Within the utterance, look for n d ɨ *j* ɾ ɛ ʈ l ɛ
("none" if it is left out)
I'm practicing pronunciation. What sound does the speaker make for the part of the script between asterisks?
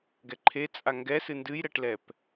j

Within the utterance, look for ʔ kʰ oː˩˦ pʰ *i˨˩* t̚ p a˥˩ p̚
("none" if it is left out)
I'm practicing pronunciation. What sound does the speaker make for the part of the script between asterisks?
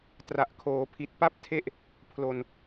i˨˩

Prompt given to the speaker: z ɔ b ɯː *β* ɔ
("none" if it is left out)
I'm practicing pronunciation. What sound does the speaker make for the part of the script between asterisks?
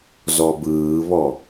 β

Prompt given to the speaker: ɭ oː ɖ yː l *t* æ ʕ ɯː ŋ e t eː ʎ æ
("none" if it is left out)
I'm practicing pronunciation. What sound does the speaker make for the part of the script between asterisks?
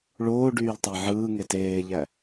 tˤ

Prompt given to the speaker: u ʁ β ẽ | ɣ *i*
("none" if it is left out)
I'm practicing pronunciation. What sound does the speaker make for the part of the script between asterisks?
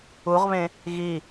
i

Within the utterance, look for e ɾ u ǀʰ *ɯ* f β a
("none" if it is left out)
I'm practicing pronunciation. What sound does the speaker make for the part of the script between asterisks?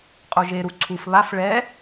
u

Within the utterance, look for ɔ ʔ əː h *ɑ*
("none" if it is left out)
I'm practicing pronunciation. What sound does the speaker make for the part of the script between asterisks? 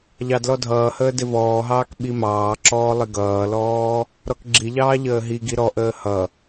ʌ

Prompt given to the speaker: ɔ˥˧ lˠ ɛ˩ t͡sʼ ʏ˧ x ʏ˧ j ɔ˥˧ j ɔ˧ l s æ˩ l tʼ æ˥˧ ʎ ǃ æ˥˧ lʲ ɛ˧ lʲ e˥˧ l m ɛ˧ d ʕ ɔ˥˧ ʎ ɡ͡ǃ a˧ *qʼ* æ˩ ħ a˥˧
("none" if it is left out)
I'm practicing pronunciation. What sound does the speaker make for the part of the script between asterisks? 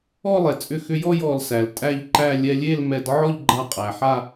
qʼ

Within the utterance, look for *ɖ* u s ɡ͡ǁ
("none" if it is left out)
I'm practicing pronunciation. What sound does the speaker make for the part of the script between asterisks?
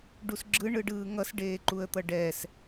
ɖ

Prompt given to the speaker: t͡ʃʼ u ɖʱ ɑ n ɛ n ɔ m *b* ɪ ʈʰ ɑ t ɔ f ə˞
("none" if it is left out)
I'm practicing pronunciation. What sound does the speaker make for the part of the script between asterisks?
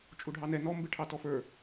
b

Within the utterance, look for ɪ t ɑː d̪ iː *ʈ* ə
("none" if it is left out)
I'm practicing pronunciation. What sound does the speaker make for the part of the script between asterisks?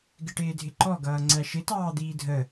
dʱ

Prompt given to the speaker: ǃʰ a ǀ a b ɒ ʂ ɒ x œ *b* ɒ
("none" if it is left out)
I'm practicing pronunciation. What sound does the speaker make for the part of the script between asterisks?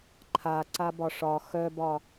b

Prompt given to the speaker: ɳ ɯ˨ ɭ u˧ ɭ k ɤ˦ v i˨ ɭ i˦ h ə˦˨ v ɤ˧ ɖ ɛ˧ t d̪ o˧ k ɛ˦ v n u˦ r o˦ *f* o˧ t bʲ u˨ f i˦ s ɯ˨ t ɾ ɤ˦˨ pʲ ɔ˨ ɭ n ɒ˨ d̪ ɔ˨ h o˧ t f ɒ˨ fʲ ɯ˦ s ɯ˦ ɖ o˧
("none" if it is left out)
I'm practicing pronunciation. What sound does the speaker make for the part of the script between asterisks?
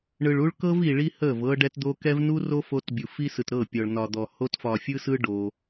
f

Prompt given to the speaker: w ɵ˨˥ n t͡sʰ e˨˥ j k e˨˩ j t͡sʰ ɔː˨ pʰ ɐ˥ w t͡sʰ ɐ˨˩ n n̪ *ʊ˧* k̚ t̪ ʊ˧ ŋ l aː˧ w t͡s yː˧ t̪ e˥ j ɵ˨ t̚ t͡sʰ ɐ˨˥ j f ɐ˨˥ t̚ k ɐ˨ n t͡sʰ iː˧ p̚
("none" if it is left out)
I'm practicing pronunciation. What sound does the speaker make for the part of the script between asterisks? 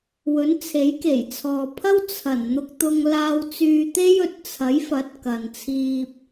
ʊ˧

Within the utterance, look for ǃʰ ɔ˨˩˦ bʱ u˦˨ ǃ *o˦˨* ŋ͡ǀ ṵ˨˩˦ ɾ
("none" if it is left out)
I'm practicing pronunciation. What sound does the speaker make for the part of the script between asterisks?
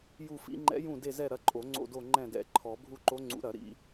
o˧˥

